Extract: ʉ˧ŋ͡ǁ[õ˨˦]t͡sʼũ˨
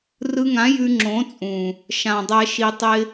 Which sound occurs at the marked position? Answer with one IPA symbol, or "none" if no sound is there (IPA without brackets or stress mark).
õ˨˦